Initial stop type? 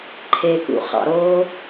click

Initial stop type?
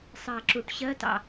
click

